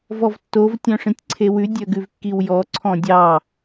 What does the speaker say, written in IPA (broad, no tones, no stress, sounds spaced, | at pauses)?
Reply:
v ɔ v tː o v tʲ œ̃ ʂ ĩ tʲ ǀʰ e w ʉ dʲ œ ɡ ʉ v kː i w j ɔ ǀʰ ɔ̃ dʲ ɑ